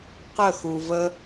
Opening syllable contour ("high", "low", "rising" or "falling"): falling